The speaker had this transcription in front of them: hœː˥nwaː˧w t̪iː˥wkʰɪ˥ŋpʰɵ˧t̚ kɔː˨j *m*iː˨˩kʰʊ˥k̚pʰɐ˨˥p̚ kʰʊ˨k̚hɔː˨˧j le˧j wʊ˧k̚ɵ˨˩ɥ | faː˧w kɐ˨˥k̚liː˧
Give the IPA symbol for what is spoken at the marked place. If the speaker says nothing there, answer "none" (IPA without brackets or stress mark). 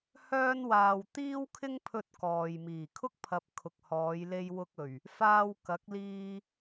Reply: m